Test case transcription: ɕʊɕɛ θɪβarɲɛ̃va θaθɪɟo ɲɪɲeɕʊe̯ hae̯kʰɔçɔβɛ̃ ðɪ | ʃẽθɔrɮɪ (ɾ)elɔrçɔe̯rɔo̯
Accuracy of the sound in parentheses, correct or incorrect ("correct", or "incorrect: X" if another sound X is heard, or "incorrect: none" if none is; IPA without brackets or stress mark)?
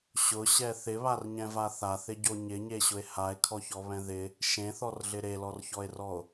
correct